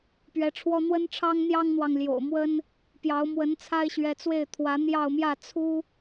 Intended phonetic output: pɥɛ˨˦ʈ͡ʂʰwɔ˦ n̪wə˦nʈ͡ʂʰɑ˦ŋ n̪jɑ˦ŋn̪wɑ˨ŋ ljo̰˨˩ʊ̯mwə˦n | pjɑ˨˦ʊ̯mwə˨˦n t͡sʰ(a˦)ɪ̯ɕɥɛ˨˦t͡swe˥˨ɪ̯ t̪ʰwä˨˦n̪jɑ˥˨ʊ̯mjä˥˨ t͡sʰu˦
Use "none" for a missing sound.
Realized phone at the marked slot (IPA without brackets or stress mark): a˦